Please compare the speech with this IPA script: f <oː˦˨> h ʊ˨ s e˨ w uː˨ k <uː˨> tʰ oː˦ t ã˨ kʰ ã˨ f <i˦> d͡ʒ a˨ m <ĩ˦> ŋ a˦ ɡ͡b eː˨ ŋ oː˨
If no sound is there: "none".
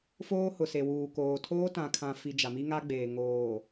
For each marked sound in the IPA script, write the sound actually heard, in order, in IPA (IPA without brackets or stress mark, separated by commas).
oː˦, oː˨, i˨, i˦